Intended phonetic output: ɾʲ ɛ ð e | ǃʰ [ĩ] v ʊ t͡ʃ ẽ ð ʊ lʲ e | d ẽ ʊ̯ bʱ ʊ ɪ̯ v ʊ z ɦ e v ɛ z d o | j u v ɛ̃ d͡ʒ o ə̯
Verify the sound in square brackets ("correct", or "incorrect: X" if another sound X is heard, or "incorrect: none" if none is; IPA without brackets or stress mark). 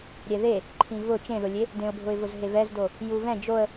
correct